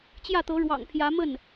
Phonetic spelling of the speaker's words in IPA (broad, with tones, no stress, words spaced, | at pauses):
t͡ɕjä˥˩t̪ɤ˧˥ɻwɑ̰˨˩ŋ pʰjä˧˥ mə˥˩n